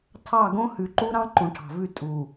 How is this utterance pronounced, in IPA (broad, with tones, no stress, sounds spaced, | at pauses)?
tʰ ɑ˦˨ ɡ õ˦ h ʉ˨ ǃ u˦ ɾ ɑ̃˦ ǃ ũ˨ ʈʰ ɑ̤˨ v ʉ˦˨ tʼ u˨